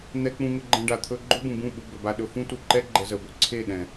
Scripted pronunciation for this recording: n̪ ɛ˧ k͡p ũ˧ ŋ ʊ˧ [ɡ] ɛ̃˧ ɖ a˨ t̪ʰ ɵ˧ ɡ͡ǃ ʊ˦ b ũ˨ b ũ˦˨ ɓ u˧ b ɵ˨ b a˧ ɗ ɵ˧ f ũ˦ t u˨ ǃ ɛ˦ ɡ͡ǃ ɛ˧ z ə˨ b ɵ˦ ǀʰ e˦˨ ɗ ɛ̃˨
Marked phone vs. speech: incorrect: ɡ͡ǃ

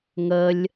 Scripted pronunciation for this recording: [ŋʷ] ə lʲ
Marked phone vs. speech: incorrect: ŋ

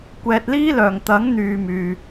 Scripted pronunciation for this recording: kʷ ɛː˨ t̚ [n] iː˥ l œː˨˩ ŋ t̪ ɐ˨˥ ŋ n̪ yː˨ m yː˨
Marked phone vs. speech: incorrect: l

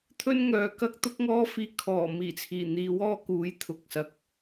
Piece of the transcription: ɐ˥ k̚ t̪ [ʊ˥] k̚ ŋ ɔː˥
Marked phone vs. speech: correct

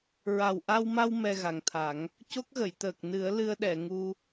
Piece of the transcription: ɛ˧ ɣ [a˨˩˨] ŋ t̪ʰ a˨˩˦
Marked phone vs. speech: incorrect: a˨˩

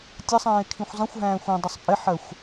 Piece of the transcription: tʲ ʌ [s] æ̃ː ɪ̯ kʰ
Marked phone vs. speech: incorrect: sˤ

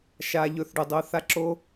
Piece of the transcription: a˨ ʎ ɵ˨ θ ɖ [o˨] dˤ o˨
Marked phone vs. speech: correct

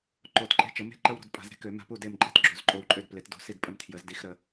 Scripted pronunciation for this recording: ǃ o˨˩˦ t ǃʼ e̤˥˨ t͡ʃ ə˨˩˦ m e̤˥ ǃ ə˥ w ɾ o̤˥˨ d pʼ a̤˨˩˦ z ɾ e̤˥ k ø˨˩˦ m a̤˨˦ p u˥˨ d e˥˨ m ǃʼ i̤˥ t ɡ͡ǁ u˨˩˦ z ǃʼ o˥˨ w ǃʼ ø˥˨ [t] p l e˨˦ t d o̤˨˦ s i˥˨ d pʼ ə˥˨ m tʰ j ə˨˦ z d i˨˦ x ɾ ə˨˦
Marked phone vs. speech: incorrect: d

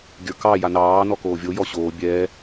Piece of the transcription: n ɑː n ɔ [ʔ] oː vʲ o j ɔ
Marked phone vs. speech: incorrect: k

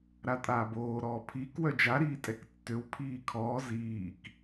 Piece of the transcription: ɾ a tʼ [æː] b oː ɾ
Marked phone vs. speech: incorrect: aː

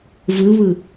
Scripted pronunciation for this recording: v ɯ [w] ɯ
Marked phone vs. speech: incorrect: β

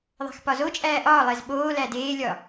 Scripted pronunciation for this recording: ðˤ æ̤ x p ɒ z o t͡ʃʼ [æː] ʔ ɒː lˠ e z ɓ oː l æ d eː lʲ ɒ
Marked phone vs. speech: correct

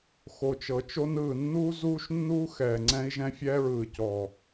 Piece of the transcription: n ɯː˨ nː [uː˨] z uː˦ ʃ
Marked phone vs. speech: incorrect: uː˦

